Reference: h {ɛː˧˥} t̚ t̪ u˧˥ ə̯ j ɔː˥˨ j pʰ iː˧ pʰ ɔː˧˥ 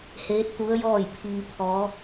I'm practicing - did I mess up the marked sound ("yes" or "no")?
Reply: yes